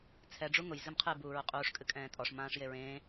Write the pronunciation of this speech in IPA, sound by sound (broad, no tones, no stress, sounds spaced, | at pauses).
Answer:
t͡sʰ ɛ ɖ͡ʐ u ŋ ʊ j z ɨ m qʰ ɨ b uː ɹ ʊ qʼ uː ʂ kʼ ɨ kʼ ɛ̃ː tʼ ɔ ʂ m ãː ʂ j e ɹ ẽː